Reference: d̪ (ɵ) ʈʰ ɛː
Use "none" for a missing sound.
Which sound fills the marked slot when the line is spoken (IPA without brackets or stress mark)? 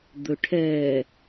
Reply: ɵ